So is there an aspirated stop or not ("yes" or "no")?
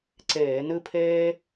yes